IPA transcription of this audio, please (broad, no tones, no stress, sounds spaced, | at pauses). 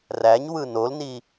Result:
r æ ɲ w ɯ n o l n i